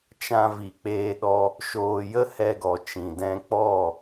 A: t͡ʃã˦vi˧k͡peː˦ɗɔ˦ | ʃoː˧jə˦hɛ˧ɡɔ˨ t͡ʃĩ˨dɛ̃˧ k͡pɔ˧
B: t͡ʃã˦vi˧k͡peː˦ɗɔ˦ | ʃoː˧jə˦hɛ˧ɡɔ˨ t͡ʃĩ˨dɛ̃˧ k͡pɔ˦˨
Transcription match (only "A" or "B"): B